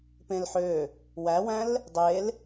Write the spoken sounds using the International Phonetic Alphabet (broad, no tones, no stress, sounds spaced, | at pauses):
p ẽ l ħ ø | w æ w æ̃ l | dˤ e l